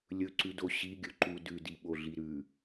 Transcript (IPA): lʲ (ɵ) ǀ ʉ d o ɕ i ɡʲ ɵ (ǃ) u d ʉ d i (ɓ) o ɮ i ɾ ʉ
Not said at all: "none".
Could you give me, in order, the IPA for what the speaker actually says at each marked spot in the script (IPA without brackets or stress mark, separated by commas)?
ɵ, ǃ, ɓ